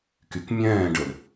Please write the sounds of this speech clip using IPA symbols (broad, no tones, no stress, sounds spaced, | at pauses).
k y k mʲ ɛ̃ː ɖ ə l